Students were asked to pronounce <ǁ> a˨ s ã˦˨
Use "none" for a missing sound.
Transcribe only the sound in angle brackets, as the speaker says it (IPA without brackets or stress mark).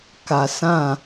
k